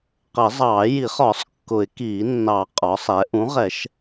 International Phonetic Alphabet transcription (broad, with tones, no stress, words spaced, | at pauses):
qə˨˩˦zˤɑː˨˩˦ ji˨˩˦χɒ˨˩˦sˤ kːʊ˨˩˦ɪ̯kiː˨˩˦nːɑ˨˩˦ qʼɒ˩˥sˤɛ˩˥ ʔũ˩˥ ʁɛ˨˩˦ʃ